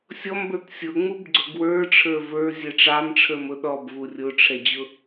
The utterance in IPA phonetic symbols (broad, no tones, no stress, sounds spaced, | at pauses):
sʲ ɔ m b ə˞ t sʲ ʊ ŋ͡m u b ɡ͡ǀ ʊ ɡ w ə˞ ʈ͡ʂʰ ə˞ v ə˞ zʲ ɛ ʈ͡ʂ ɑ m ʈ͡ʂʰ ə˞ m ʊ ɗ ɔ b v u rʲ ʊ ʈ͡ʂʰ ɛ d͡ʑ ʊ